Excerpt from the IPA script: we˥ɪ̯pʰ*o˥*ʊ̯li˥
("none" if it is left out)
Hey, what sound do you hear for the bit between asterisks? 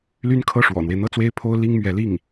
o˥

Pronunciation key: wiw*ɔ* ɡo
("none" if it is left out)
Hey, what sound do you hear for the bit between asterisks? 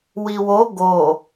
o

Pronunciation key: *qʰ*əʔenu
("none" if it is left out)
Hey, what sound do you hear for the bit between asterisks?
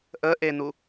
ʔ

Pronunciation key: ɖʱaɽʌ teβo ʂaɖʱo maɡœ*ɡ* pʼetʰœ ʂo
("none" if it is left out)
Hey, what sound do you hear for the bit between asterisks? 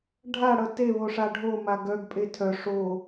ɡ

